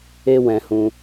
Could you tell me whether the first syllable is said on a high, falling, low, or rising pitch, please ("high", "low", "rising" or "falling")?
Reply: high